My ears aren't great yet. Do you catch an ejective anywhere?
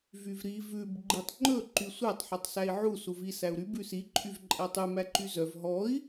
yes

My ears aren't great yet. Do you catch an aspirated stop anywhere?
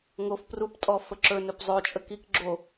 no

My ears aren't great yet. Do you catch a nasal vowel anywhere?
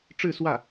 no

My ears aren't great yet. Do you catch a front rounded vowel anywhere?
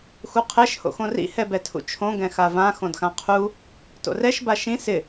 no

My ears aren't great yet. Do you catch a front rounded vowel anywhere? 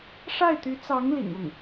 yes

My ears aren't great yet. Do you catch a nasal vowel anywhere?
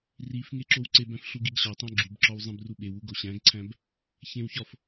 yes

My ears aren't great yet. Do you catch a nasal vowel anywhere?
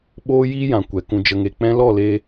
yes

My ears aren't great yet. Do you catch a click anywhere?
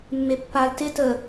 no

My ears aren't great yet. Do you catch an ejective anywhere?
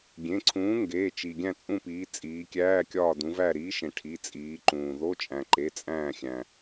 yes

